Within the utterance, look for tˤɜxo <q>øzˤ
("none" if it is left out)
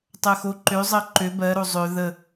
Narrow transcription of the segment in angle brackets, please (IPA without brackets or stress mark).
ǃ